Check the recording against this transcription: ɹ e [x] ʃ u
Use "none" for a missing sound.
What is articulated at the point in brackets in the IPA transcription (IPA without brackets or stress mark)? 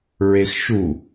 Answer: x